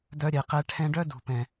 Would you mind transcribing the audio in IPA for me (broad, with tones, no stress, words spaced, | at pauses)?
dœ˧ɾʲɛ˨qɛ˧ ʈʰɛ̃˧ɖœ˦dṳ˨pɛ̃˨